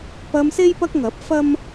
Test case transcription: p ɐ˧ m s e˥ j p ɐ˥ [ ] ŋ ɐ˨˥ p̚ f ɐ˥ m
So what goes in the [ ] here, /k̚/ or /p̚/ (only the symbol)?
k̚